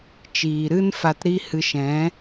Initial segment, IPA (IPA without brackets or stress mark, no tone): t͡ʃ